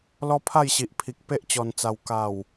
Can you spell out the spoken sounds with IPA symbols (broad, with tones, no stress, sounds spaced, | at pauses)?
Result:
l ɔ˦ pʰ a˥˧ j ɕ i˨ ʔ pʰ i˨ k̚ p e˦ ʔ t͡ɕ ɔ˨˩ n t͡s a˨˩ w k a˨˩ w